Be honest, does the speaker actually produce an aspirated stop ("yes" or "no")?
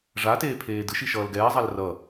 yes